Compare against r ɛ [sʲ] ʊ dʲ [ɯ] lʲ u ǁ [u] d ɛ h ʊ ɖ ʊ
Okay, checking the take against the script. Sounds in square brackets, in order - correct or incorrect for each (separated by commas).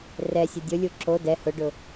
correct, incorrect, incorrect